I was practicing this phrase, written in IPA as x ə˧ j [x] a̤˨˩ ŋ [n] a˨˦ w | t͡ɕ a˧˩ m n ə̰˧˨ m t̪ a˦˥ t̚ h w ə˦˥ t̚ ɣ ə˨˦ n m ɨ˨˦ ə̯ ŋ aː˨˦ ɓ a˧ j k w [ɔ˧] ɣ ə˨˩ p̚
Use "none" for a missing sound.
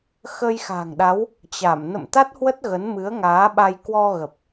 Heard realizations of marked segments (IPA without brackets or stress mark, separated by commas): x, ɗ, ɔ˧